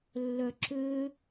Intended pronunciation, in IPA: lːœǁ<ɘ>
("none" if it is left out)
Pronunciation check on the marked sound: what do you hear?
ø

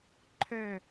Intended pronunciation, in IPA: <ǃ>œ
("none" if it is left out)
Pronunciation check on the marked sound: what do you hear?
ǃʰ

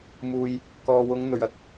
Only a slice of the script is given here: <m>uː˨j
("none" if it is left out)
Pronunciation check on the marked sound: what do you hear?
m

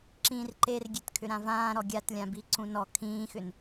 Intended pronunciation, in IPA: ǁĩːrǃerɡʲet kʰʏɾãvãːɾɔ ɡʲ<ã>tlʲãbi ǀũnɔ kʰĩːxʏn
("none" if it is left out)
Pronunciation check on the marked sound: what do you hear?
a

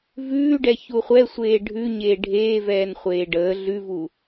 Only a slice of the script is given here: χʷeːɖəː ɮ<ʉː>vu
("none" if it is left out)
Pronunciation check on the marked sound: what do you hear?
ʉ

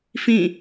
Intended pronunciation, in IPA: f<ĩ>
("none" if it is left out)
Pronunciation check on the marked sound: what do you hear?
ĩ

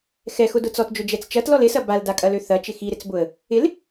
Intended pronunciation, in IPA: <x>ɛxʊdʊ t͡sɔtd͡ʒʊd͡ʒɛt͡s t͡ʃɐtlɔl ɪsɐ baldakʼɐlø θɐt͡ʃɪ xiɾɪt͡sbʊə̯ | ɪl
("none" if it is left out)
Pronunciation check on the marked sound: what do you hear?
x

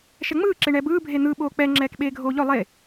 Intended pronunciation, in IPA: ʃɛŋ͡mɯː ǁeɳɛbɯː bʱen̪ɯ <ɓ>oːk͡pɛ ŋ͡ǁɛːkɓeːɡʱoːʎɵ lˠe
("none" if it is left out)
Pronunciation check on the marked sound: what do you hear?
ɓ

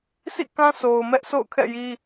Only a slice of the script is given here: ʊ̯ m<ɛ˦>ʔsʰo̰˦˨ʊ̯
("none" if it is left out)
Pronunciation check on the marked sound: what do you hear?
ɛ˦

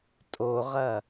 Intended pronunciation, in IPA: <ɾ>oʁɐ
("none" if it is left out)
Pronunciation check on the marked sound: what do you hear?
tʼ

